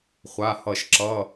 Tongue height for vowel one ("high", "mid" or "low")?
low